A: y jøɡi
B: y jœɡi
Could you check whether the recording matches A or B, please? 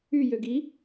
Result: A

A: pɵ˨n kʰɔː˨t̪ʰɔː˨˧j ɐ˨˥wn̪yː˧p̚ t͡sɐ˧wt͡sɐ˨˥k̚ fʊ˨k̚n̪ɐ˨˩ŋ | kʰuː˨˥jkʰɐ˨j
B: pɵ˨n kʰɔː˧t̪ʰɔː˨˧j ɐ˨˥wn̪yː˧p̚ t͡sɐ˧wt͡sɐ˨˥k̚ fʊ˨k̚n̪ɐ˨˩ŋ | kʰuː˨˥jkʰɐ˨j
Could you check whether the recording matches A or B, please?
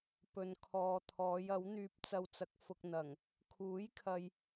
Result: A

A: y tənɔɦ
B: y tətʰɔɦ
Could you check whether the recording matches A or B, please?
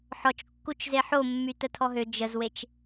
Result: B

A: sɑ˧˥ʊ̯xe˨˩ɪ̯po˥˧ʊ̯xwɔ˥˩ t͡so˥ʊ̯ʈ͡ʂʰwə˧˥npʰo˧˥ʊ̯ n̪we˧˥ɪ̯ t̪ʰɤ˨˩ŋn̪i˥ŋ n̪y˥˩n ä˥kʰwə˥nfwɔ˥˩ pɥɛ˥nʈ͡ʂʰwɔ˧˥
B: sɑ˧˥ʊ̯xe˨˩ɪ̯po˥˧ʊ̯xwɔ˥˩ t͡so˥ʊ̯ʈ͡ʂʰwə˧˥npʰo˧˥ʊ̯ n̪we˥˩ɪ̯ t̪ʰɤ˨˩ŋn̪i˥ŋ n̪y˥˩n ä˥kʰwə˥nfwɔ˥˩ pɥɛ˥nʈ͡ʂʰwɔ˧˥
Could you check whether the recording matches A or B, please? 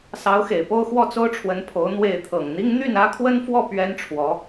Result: B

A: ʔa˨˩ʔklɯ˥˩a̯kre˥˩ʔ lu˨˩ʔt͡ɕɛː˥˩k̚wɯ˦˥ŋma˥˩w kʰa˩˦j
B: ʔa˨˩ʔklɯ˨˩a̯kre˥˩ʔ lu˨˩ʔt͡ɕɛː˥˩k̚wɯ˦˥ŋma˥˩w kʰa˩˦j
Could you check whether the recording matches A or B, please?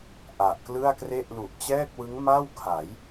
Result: A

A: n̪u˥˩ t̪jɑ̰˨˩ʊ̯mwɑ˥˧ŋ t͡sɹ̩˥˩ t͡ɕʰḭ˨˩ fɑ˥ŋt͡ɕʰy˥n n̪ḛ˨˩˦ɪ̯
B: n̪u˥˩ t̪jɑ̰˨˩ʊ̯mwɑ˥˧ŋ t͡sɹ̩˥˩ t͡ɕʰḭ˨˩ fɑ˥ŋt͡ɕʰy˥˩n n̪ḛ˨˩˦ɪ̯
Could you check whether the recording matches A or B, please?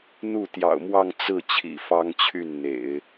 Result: B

